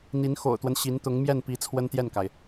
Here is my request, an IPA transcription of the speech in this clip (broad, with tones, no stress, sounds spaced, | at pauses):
n̪ i˧˥ n x o̰˨˩ ʊ̯ t̪ w ə˦ n ɕ i˧˥ n t̪ ʊ˧˥ ŋ m j ɛ˥˩ n p i˧˥ t͡sʰ w ə˥ n t̪ j ɛ˥˩ n k a˩ ɪ̯